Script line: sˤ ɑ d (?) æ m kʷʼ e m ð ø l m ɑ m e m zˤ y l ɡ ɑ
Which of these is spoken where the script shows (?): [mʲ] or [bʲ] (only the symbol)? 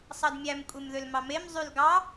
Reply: mʲ